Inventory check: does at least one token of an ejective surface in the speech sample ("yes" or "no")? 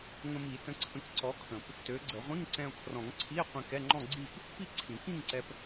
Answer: no